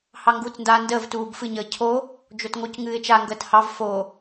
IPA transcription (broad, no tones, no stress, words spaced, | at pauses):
hɑŋɡuːt͡sndaːndəːv tuːbfɨ ɲəːcʰo | d͡ʒotŋoc ŋɨːɪ̯t͡ʃa ŋɡəːthɑv fo